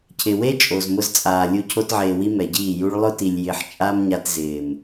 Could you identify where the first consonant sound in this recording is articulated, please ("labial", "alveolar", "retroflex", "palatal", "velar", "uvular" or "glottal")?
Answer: palatal